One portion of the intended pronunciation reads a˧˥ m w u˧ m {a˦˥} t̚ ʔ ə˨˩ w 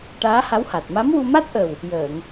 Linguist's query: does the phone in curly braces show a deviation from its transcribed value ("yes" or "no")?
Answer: no